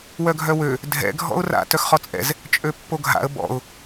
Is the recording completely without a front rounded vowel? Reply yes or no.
no